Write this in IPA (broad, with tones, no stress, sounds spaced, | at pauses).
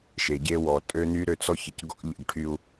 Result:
ʃ e˨ ɟ e˦ w ɔ˨ tʼ ø˦ n y˦ ɾ ø˦ t͡s ɔ˦ ç ə˨ c ɡ ɔ̰˦ ʎ ə̰˦˨ ɡ ʈʰ y˦ u̯